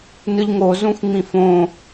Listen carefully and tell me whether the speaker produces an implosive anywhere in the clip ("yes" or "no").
no